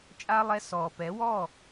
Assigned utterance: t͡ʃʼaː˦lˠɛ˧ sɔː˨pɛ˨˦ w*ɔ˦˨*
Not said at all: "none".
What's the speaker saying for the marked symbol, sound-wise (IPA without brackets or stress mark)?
ɔ˦˨